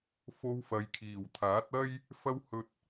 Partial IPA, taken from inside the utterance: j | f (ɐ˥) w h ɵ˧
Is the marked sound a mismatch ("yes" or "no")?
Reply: no